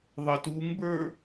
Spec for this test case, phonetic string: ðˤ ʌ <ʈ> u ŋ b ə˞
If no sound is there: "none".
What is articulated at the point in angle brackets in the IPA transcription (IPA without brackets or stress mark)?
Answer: t